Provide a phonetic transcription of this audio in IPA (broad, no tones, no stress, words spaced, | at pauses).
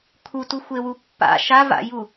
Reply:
kʰutuxʷewu pːa̰ ʃava̰ju